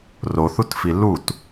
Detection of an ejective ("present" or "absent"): absent